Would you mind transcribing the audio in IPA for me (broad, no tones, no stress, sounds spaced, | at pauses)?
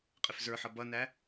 qʼ ɪ f z ə˞ ħ ʌ b ʌ n æ